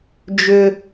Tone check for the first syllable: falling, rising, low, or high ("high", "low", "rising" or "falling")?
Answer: high